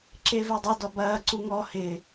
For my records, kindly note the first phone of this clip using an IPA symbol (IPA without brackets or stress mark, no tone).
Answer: ǁ